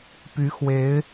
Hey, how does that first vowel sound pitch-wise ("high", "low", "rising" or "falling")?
rising